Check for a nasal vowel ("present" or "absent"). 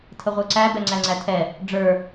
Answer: absent